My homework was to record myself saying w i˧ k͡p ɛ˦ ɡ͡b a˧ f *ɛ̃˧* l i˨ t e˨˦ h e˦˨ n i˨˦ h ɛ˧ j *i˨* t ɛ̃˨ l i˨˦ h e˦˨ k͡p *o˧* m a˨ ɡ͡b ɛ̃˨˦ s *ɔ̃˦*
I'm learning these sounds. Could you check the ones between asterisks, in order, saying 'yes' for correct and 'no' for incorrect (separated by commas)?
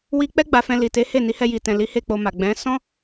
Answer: yes, yes, yes, yes